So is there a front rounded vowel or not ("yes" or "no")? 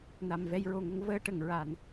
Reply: no